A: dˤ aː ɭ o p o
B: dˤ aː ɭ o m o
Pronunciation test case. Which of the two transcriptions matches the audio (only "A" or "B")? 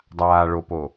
A